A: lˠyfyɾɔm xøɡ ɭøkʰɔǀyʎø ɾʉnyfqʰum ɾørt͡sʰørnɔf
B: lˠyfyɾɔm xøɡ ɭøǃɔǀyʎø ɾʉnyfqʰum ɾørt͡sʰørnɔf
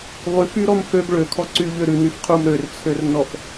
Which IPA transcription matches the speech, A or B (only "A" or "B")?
A